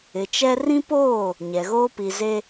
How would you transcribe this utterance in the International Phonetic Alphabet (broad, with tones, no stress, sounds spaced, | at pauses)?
ɪ˨ t͡ʃ ɛ˦ r ĩ˦ p oː˦˨ | ɲ ɛ˨ ɣ oː˦ p i˨ z e˦